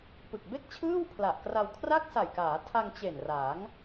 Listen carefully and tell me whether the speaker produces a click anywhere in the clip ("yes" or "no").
no